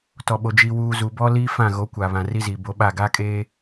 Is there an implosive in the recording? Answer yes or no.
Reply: yes